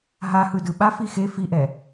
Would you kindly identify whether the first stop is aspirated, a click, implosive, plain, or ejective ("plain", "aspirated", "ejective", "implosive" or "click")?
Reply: plain